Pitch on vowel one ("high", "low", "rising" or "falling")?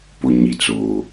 low